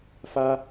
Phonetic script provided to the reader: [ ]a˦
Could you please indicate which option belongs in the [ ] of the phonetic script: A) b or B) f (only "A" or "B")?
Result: B